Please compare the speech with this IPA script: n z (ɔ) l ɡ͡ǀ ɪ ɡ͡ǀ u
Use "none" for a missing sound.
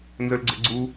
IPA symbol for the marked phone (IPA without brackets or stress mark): ə